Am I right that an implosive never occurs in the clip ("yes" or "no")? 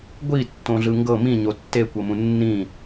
yes